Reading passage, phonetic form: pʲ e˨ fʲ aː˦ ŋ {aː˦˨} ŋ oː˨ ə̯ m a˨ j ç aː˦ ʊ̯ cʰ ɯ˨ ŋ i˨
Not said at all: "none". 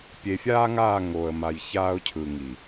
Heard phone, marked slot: aː˦˨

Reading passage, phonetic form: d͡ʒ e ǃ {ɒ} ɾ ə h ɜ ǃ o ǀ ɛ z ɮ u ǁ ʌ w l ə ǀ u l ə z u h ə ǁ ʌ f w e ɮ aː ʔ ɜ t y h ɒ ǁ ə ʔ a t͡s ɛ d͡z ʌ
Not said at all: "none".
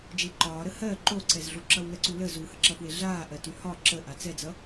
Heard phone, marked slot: ɒː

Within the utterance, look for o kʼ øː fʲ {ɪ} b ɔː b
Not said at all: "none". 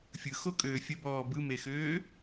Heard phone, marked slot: ə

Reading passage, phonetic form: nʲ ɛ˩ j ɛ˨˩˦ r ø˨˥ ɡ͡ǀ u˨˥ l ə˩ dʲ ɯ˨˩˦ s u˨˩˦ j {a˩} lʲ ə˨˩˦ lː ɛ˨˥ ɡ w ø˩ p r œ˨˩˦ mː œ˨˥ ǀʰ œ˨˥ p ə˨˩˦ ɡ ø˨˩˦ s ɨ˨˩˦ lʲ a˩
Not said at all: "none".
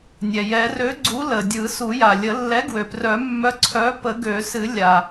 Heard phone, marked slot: a˩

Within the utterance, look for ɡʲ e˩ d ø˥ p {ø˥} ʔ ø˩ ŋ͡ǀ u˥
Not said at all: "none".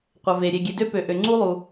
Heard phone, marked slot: ø˩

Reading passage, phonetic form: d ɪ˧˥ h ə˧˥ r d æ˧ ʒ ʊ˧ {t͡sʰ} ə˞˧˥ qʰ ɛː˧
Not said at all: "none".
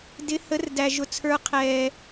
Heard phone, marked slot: t͡sʰ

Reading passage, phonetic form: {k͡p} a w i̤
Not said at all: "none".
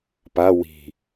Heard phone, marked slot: p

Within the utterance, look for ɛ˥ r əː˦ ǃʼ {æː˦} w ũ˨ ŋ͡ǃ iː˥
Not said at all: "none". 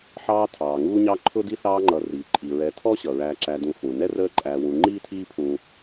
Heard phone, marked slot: æː˨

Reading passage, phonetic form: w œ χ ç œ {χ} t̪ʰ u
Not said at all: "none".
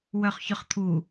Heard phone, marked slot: χ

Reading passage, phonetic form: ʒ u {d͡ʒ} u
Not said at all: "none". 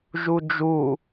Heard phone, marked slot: d͡ʒ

